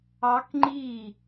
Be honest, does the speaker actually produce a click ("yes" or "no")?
yes